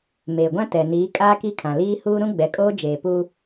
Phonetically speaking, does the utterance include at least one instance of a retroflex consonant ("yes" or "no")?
no